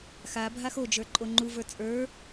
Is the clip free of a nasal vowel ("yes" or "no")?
yes